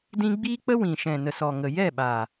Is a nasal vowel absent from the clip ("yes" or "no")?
no